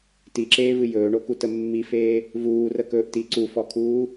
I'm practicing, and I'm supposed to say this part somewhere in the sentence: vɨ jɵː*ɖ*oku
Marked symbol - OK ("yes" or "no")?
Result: no